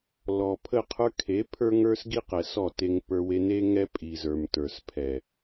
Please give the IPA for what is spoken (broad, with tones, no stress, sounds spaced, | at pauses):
l ɔ˨ pʰ ə˦˨ qʰ ə˞˦ kʰ e˨˦ pʰ ə˞˦ ŋ ə˞˦ s ɡ i˦ q ɛ˨ s ɔ˦˨ t e˧ ŋ p ə˞˧ w e˧ n e˦ ŋ ɛ˦ pʼ i˨ z ə˞˨ m t ə˞˨ s pʰ ɛ˨